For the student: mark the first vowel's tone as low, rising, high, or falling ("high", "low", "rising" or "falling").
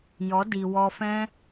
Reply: rising